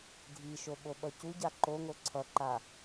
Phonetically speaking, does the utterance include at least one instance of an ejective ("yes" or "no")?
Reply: no